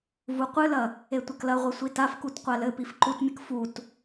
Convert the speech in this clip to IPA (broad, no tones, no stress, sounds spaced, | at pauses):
v u qʷ ɨ l ɐ | e tʷ ɐ k l ɐ ʁʷ ɛ sʷ i t a f k u t qʷ a l ɘ p i f ǃ u t mʲ ɘ k f u t